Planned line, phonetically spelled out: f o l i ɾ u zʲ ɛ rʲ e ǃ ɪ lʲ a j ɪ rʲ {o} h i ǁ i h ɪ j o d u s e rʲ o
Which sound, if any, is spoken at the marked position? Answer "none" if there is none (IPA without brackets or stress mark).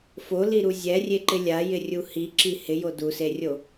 u